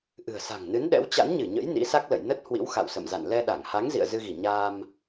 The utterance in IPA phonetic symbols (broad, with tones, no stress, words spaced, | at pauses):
ʔɨ̤˨˩ə̯sa̤˨˩ŋnɨ˨˦nɗɛ̰˧˥w t͡ɕa̰˧˥nɲɨ˧˩ɲə̰˧˥j nḭ˧˥sa˦˥k̚lə̰˧˨j nə˦˥t̚hwḭ˧˥wxa̰˧˨w sə̰˧˨mza̰˧˨n lɛ˧ɗa˧˩ŋha˨˦ŋ zḭ˧˨ə̯zɨ˧ɣi˧˩ ɲaː˧m